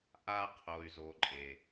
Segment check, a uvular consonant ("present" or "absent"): present